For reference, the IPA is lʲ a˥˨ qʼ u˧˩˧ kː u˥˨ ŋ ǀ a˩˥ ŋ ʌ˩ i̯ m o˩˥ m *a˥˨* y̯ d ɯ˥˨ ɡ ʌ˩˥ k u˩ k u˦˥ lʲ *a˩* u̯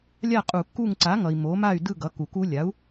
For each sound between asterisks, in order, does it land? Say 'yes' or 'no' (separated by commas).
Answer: yes, no